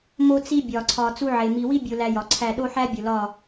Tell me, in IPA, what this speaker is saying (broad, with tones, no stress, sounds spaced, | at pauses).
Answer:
m o˦ t͡s i˦ bʲ ɒ˨ ǀʰ ɒ˨ t͡s u˦ ʕ e˨ m i˦ w i˦ bʲ o˨ l æ˨ j ɒ˨ ǀʰ æ˦˨ ɗ o˦ ħ æ˦ bʲ o˨ l ɒ˦˨